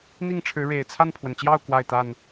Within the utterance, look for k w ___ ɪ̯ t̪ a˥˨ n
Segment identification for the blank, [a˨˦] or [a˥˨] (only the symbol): a˥˨